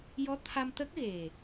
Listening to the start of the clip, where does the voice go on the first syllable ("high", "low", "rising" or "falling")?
rising